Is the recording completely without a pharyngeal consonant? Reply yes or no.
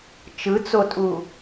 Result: yes